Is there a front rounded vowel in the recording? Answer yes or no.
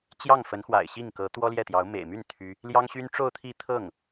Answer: yes